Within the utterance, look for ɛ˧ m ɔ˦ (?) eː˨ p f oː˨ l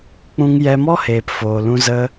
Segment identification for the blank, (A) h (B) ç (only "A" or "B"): A